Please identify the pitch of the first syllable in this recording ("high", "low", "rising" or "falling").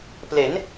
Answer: rising